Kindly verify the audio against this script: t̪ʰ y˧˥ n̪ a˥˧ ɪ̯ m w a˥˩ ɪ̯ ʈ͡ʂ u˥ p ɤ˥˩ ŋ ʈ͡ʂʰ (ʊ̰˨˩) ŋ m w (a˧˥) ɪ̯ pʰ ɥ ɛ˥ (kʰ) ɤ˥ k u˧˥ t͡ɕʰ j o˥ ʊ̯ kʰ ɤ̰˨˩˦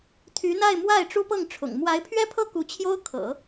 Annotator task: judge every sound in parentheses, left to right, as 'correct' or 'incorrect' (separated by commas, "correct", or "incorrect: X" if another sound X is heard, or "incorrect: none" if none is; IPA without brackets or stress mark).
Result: correct, correct, incorrect: pʰ